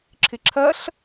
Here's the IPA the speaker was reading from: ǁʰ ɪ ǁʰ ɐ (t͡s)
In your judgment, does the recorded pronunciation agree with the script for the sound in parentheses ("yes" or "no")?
no